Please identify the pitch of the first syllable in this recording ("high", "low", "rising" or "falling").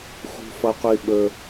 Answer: low